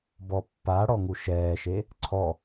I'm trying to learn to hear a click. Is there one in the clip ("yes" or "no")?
yes